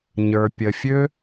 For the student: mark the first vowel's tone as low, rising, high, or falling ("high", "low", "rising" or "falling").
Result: low